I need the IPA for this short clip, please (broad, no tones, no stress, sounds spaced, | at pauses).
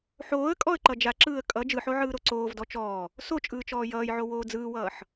ħ oː ə̯ kʼ ɔ ə̯ ǃ ʌ d͡ʒ a ǁ ɯː ə̯ kʼ ʌ d͡ʒ ɯ ħ o ʕ ɯː ɾ o ǀ oː v d ɔ t͡ʃ ɔː | s o t͡ʃʼ ɯː t͡ʃ ɔː j ʌː j ʕ o w oː d͡z ɯː w ʌː ħ